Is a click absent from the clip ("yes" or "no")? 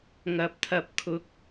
yes